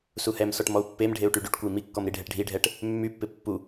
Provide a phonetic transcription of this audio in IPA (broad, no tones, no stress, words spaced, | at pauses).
suhɛmsɔʈ mɔu̯pːemɖʱeu̯ ʈyɖyʈkʷəi̯ mikːɔm ɾiɖʱɛʈɖʱiɖʱɛʈ | mːypːɪ pːu